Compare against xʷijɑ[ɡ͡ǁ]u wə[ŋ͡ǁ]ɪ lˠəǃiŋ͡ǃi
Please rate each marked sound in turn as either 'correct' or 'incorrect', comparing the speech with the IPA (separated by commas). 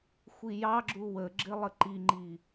correct, incorrect